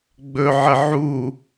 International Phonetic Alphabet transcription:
ɡ͡bɵʕə ʕu

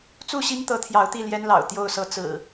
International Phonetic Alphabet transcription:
t͡su˥˨ɕi˦ŋ t̪ɤ˨˦t̪ʰjɑ˨˦ʊ̯ t̪i˥˨ljɛ˦nlɑ̰˨˩ʊ̯ t̪jo˥˨ʊ̯sɤ˥˨ t͡sɹ̩˨˩

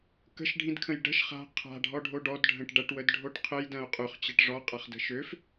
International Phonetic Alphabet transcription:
kə̤ʃɖʱĩdkʰə̃j ɖə̤ʃ χa̤ qʰa̤ɖʱɔɖʱo ɖɔdɖʱə̃ʈ ɖɐʈwədɖʱoʈ qʰəjdɐ̃o̯ qʼøχt͡ɕɐʈ ʐɔqʼaχdə̤ ʃøf

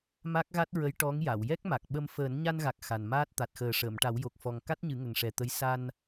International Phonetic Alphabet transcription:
ma˦˥k̚ɣa˦˥t̚ɹə˧˥j ʈɔ˧˥ŋja˨˩˨w jɛ˦˥k̚ma˨˩k̚ɓə˧m fəː˨˩˦nɲa˧nɣa˨˩k̚ xa˨˩nmaː˦˥t̚ t̪a˨˩t̚xəː˨˩ʂəː˨˩˨mʈa˨˩˦w jo˨˩k̚fɔ˨˩ŋ ka˦˥t̚ɲɨ˨˩˦ ŋə˨˩ŋʂɛ˨˩t̪ə˧˥j sa˧n

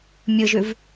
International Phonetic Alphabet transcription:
mʲɯʒʉv

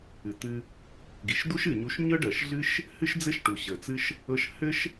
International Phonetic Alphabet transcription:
ɨ˩t̪ɨ˧ | ɡi˩ʃd̪u˥ʃɨ˩ɲu˧ʃ ɲɤ˥ɖɜ˩ʃ ɮɨ˥ʃ | hɨ˥ʃd͡zɘ˥ʃʈu˩ ɕə˩t͡sɨ˧ʃ | ɤ˧ʃhɘ˥ʃ

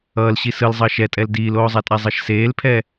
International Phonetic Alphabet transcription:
ʌːlɕi sɯlzˤʌːʃ ɛtʼɛl diːloːzˤatʼa zˤʌʃseːlpʰɛ

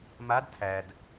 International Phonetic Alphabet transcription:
mad tʰæd

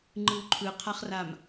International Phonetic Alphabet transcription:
ŋ͡ǃɯwǃʰɯqʰaχram

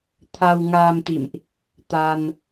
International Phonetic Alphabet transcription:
t̪ʰa˧wŋaː˧mt̪ḭ˧˨mʔ | t̪a˧n

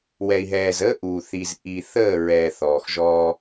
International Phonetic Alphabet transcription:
wɛ˨i̯ɦɛː˨zəː˦ ʔuː˨θi˨z ʔi˨ θəː˦˨ɹɛ˨ θɔː˨xʒɔː˦

